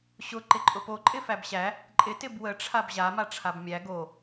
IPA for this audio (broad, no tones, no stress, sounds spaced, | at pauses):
ɕ ʊ ǃ ɪ ǃʼ ʊ p o ǃʼ ɪ f æ b ɕ æ | ǃʼ ɪ t ɪ b w ə ʈ͡ʂʰ a b ʑ a m a ʈ͡ʂʰ a b mʲ æ ɡ o